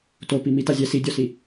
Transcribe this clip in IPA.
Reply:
t o p i m i t a zʲ ɛ s i dʲ ɔ s i

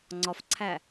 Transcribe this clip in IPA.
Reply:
ŋ͡ǀ ɒ f ǀʰ æ

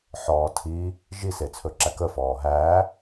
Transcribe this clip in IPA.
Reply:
ħ ɔː tʰ i | ʒ i s e t͡sʰ ɵ ǁ æ k ə f ɔː ɦ æː

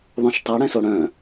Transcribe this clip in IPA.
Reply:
ðˤ õ ʃ tˤ a ɽ ɛ̃ s o ɽ œ̃

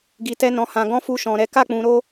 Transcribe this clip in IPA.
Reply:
ɡ i˨ t ɛ˧ n ɔ̃˨ h ã˨ ɡ ɔ̃˧ f u˧ ʃ ɔ̃˨ ɾ ɛ˨˦ k a˦˨ k͡p ũ˨ ɾ o˧

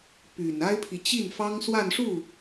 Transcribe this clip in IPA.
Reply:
p y˨˩ n a˥ ɪ̯ pʰ i˨ t͡ɕ i˥˩ n f ɑ˥ ŋ s w a˥˧ n ʂ u˥˩

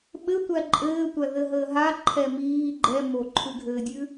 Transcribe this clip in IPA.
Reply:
ɓ ɘ tʷ æ ǃʼ ɘː tʷ æ ð ɘ ɦ əː ɦ a ǃʰ ɛ m iː ɡ͡ǃ ɛ m o ǃʰ ʉ ɡʱ ɘː dʲ ʉ

